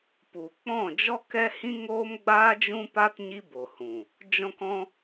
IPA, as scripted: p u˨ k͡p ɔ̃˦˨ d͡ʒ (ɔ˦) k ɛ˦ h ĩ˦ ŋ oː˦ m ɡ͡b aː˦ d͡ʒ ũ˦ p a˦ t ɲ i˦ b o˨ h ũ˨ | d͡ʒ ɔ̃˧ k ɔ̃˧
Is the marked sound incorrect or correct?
correct